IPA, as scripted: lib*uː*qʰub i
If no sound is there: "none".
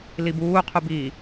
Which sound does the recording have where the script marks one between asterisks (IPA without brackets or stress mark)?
uː